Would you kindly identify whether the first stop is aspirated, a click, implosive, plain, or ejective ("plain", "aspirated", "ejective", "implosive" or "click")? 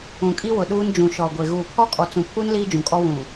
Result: ejective